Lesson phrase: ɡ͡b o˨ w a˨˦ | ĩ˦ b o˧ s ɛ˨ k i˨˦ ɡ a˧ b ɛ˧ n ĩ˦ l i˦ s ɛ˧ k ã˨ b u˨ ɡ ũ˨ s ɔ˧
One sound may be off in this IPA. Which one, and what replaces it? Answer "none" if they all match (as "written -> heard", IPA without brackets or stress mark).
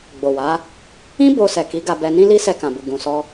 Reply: none